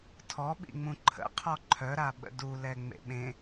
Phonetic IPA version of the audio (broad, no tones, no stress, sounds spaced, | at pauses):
tʰ ɔ ɓ ḭ ŋ͡m ũ ǃʰ ə̰ qʰ ɔ ǃʰ œ ɾ a ɓ ə̰ d u l ɛ ŋ͡m ḛ ɓ ẽ